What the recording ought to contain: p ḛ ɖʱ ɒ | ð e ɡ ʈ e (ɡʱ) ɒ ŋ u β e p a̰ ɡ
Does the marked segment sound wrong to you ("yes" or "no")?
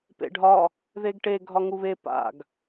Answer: no